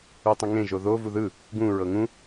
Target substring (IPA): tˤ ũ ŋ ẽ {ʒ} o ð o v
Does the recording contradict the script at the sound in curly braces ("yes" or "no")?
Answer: no